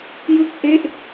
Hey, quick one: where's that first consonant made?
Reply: palate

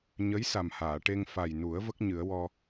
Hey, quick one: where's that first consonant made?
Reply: palate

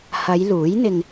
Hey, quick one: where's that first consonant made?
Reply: throat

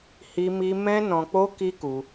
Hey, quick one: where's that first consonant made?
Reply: throat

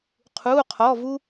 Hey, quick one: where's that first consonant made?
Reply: uvula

